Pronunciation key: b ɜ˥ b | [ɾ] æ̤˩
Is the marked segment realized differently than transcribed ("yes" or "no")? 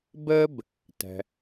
yes